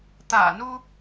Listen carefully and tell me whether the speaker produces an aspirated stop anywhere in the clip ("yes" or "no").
no